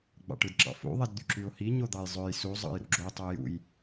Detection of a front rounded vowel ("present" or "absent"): present